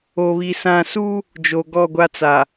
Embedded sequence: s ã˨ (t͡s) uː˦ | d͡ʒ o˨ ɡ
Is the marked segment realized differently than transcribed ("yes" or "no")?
yes